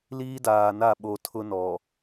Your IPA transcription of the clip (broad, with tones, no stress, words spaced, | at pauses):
liː˦daː˨na˦˨ ɓo˨ tʰʊ˦nɔ˨